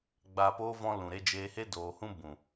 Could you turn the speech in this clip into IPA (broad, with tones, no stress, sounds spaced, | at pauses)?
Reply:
ɡ͡b aː˨ p oː˧ v ɔ̃˧ l ũ˨ ɾ e˧ d͡ʒ eː˧ h e˦ d oː˧ h ũ˦ b ũ˨